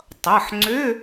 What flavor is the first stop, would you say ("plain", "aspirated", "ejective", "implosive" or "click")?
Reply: plain